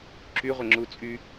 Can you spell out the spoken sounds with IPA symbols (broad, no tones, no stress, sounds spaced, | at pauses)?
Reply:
ǁ y ʁʷ ə ŋ͡ǁ u t͡sʼ y